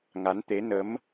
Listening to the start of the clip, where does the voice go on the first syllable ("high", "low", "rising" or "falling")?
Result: rising